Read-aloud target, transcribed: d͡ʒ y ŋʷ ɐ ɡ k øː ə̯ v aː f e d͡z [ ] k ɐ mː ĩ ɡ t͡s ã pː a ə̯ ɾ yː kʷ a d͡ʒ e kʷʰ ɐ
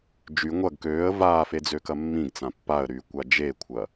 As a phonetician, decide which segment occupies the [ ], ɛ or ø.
ø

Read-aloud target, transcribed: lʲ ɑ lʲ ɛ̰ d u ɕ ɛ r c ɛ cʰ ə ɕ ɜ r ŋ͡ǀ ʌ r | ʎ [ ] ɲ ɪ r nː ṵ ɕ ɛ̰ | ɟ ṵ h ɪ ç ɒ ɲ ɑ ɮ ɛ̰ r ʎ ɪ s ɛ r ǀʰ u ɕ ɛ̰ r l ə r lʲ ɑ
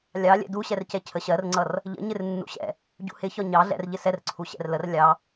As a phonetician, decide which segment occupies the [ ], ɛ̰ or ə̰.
ə̰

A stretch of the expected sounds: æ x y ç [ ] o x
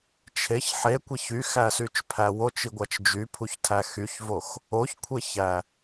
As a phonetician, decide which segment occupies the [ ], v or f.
v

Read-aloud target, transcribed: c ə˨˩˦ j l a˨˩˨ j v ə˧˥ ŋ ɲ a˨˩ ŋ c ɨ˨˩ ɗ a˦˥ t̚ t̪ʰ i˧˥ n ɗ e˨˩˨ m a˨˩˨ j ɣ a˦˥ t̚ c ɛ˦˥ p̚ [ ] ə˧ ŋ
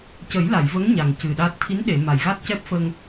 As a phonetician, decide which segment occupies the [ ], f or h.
f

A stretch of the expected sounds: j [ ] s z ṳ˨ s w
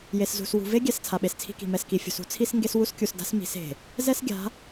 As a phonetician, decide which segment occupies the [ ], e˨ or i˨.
e˨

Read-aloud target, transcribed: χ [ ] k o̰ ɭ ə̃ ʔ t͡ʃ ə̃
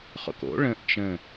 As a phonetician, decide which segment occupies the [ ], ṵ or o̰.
o̰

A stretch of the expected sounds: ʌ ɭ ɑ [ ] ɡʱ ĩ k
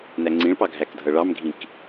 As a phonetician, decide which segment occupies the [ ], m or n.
m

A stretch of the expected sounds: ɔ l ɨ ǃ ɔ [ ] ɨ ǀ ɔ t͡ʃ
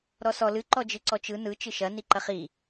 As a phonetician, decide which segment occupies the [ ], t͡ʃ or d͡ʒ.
d͡ʒ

